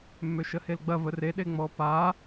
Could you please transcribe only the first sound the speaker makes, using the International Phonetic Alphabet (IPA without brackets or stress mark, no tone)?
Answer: mː